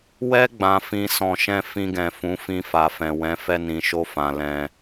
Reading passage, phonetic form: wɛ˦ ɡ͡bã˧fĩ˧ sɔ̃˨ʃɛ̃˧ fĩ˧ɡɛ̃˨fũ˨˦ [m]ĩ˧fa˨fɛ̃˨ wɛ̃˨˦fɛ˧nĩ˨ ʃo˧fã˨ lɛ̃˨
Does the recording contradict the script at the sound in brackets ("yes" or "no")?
yes